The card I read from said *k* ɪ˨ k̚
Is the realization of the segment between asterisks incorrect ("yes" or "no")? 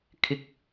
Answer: yes